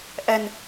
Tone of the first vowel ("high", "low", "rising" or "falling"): low